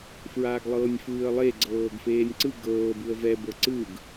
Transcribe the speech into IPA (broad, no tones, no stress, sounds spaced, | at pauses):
f ɹ aː ɡ lˠ ɤː nʲ f ɯː ə̯ lˠ e ɡ͡ǀ ɤː ɡ f eː nʲ ǀ ɯ ɡ ɤː b ɯ ə̯ v ɛ b ɤ ǀ ɯ ɡ